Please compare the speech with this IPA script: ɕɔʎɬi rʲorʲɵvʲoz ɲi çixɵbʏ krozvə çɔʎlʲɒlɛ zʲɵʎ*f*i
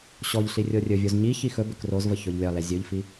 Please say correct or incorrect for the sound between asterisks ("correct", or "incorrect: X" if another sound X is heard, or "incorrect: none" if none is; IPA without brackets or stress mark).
correct